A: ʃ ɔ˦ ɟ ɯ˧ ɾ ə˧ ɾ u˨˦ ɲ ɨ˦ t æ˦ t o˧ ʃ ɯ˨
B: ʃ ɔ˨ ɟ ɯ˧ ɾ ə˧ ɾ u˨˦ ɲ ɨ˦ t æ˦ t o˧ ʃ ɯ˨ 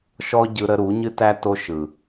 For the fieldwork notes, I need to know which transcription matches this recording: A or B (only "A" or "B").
A